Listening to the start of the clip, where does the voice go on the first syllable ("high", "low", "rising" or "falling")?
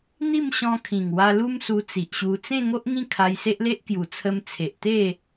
falling